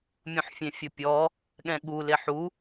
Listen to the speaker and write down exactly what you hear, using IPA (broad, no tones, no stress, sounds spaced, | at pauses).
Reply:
mʲ ũ ħ fʲ ẽ fʲ ʊ pʲ ɔ | ɠ ɛ̃ ɠ u l ɪ ħ u